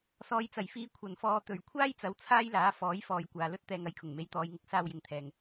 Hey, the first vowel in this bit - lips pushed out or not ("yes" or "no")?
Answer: yes